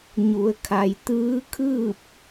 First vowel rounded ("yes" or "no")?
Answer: yes